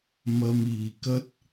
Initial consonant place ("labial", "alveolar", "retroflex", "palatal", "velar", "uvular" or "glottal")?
labial